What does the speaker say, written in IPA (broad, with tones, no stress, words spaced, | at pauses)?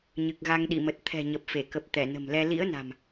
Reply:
ɲɨ˨˩k̚ɣa˧ŋɗḭ˧˨mə˨˩t̚ t̪ʰɛ̤˨˩ɲə˨˩p̚fe˧˩kə˨˩p̚ t̪ɛ˧˩nə̤˨˩mlɛ˧ lḭ˧˥ə̯na̤˨˩m